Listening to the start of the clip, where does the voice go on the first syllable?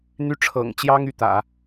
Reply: high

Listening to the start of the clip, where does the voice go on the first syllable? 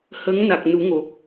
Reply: rising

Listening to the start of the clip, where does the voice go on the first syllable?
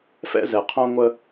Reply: high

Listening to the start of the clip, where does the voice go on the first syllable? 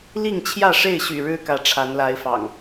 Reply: falling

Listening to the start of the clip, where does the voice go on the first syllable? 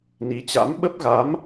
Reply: rising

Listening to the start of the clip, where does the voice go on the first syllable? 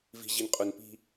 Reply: low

